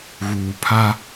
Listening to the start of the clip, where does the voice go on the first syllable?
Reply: low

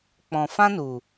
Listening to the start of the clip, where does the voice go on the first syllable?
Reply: low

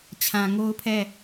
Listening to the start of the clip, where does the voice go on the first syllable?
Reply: low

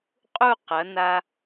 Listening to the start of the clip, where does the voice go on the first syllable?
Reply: falling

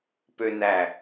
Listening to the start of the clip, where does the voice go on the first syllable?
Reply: high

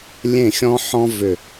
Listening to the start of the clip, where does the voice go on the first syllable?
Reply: falling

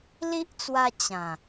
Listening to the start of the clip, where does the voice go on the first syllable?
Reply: high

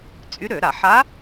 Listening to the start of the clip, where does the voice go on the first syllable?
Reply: rising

